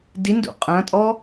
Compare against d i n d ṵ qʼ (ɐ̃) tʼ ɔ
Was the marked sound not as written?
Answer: no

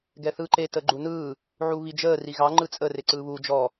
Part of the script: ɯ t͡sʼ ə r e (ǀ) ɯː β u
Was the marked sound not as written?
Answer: no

